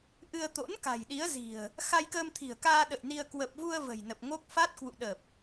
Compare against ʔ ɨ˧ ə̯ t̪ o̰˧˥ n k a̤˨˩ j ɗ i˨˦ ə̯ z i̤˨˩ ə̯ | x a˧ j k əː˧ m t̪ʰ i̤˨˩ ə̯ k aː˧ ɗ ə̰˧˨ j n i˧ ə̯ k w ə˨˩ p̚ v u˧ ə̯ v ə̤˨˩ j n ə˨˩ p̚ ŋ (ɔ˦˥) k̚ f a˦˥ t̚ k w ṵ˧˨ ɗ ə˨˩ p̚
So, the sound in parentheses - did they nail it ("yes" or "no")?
no